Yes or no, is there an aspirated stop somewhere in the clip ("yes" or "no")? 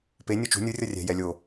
no